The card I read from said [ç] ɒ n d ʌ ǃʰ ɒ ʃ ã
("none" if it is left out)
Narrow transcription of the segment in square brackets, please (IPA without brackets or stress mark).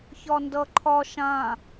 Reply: ç